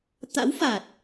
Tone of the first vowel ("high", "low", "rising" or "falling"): rising